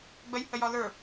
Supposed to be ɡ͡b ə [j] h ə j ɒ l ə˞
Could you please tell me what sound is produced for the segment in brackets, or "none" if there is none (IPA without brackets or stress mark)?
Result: j